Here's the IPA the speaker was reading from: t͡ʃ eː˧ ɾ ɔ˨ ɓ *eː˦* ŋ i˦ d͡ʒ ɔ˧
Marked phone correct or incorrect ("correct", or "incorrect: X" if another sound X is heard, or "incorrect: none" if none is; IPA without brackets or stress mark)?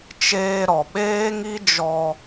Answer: correct